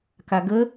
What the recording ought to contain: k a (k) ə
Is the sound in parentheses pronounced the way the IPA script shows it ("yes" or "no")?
no